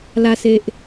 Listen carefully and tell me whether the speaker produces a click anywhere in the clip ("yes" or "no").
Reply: no